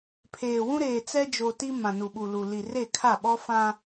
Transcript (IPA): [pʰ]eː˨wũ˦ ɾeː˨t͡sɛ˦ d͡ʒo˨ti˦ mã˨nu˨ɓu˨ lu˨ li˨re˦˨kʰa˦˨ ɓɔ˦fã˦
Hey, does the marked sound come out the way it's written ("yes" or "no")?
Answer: yes